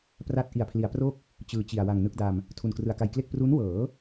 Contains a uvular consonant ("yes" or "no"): no